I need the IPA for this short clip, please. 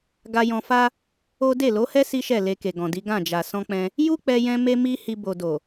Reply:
ɡ a˧ j ɔ̃˧ f a˦ | o˦ d e˦˨ l o˨˦ h ɛ˦ s i˦ ʃ ɛ˦˨ l e˧ k e˨ ɡ ɔ̃˨ d i˨˦ ɡ ã˦˨ d͡ʒ a˨ s ɔ̃˧ k͡p ɛ̃˧ | j u˦ k͡p ɛ˧ j ɛ̃˧ m e˦ m i˦ h i˧ b o˨ d o˨

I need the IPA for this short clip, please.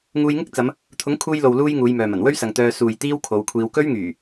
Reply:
ŋ uː˧ j ŋ ɪ˥ k̚ t͡s ɐ˨˧ m | t̪ʰ ʊ˨˥ ŋ kʰ uː˧ j l o˨ w l uː˧ j ŋ uː˨˧ j m œː˨ m ɐ˨˩ n w ɵ˥ ɥ s ɐ˨ ŋ t̪ œː˧ s uː˨ j t̪ iː˥ w kʰ o˨˧ w kʷʰ iː˧ w k ɵ˥ ɥ ŋ yː˨˩

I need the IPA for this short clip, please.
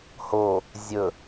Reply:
h o | zʲ ɵ

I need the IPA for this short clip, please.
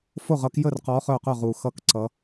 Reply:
f o˥˩ ʁ ʌ˨˦ k j ə˥˩ r q ɔ˨˦ χ œ˥˩ q œ˥˩ ʁ u˨˩˦ x ʌ˨˦ k ǀ ʌ˨˦

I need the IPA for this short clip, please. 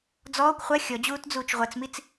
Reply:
d͡z ɔː kʷ χʷ ɜ xʲ ɔ d͡ʑ uː t d͡z uː t͡ʃ ʁʷ ɜ t͡s m i t͡s

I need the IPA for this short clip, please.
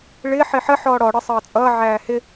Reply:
ɭ ɪ ħ ɪ ħ ə ħ ɔː ɽ ɔ ɽ ə sˤ ʌː t͡sʼ ʌː ʕ æː h ɪ

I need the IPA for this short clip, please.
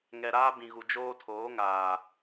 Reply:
ŋ ɛ˨ ɾ aː˦ b ĩ˨ ɣ u˨ d͡ʒ oː˦ tʰ oː˨˦ ŋ aː˨

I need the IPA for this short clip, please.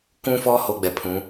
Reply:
k ũ˦ f ɔ˦ h o˦ ɡ͡b ɛ˨ pʰ ũ˨˦

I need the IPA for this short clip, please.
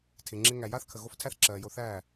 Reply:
tʰ ɪ˨ ŋ͡ǁ ɪ˧ ŋ æ˨ j a˦ θ kʰ ə˨ ɣ o˦ f tʰ æ˦ θ ǁ ɜː˨ j o˧ θ æː˦˨

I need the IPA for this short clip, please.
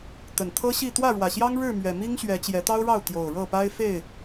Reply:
t̪ ə˨˩ n t̪ʰ ɤ˦ ɕ i˥˨ t̪ w ä˥˨ ɻ w ä˨˩ ɕ j ɑ˦ ŋ ɻ ɻ̩˥˨ m ɥ ɛ˨˩ m i˦ ŋ ɕ ɥ ɛ˨˦ t͡ɕ j ɛ˨˦ t̪ ɑ˦ ʊ̯ ɻ ɑ˥˨ ʊ̯ t̪ j o˨˩ ʊ̯ ɻ ɤ˥˨ p a˦ ɪ̯ f e˥˨ ɪ̯

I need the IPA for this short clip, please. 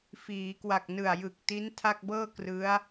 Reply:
f iː˩˦ k w a˨˩ k̚ n ɯ˨˩ a̯ j ɯ˨˩ k̚ t i˦˥ n tʰ a˥˩ k̚ b ɤː˥˩ k r ɯ˦˥ a̯

